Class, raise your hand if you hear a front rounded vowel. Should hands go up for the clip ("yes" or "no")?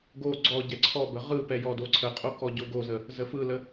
no